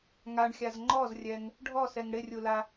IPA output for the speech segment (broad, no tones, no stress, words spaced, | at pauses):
ŋaɳxʲaz ŋ͡ǃɔzrʲɛŋ | ɖʱɔsɛŋ ɽɪrʲula